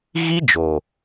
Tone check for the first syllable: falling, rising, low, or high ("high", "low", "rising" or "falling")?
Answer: high